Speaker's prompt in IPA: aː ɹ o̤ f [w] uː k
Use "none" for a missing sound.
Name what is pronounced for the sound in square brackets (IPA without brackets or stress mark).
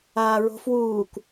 w